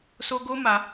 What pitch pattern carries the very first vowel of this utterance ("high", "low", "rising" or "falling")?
high